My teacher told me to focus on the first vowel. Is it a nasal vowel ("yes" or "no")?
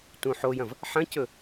yes